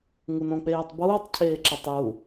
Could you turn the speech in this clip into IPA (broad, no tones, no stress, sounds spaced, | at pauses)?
ŋ u n õ k͡p eː tˤ b uː tˤ cʰ eː ǁ e tˤ j u